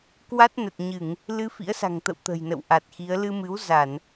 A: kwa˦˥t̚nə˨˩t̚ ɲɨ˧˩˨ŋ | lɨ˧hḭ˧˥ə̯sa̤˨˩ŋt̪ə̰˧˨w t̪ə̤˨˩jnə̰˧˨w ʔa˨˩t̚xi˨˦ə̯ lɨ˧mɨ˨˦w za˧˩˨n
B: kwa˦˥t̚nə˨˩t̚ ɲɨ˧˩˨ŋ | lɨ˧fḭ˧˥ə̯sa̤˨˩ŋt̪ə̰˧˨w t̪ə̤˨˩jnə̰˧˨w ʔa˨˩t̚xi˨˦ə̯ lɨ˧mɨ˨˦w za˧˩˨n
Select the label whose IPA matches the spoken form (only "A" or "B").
B